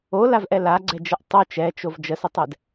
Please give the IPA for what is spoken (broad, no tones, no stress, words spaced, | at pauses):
olavʔɛ laɡ͡ǀɛd͡ʒəʔ tˤo t͡ʃɛt͡ʃov d͡ʒəsətˤɛd